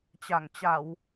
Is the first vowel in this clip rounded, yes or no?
no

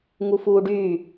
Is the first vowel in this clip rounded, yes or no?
yes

